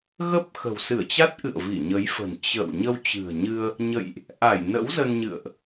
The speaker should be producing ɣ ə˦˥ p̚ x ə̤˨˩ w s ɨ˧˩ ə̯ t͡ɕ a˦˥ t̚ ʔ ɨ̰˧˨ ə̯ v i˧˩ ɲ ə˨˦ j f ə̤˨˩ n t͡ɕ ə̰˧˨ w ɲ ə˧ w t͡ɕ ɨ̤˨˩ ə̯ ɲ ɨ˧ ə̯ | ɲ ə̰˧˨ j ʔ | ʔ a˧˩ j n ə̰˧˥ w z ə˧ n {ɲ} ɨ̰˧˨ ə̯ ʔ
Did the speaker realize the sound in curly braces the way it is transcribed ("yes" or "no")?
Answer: yes